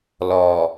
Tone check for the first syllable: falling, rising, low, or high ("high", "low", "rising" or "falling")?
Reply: low